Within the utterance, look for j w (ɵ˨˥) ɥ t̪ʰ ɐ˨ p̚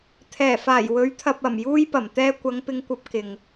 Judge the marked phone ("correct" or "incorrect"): correct